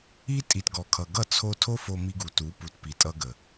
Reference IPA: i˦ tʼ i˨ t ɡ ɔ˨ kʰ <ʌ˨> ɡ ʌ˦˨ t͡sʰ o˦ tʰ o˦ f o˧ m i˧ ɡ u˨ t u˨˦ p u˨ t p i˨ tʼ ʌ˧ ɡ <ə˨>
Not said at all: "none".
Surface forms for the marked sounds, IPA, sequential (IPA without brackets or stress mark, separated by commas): ʌ˨, ə˨